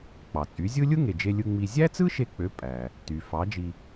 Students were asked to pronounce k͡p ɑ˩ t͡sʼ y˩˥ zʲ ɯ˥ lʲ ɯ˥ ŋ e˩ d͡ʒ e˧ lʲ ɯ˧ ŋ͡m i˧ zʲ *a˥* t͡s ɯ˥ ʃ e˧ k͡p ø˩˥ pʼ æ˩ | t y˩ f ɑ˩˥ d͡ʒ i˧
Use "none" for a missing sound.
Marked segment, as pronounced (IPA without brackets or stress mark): æ˥